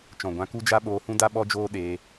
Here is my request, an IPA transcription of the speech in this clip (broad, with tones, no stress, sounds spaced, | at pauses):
t͡ʃ ɔ̃˨ ɡʷ ã˧ k u˦ d͡ʒ a˦ ɓ oː˧ h ũ˦ d a˦ ɓ ɔ˦ d͡ʒ oː˦ ɗ eː˧